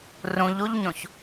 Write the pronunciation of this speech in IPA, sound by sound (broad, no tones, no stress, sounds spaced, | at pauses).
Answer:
r ũ ʎ u ʎ ɲ õ ç